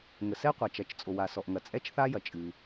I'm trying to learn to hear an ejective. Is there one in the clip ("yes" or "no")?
yes